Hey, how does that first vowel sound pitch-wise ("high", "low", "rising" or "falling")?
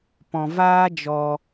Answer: low